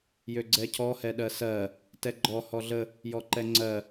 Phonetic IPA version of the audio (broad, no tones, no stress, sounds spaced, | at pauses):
j ø ɡ͡ǀ ɛ cʰ ɔ h ɛ ɗ ɜ s ɜ | t ɛ ɡ͡ǃ ɔ h ɔ ɮ ə | j ɔ ǃ ɛ ŋ͡ǀ ɜ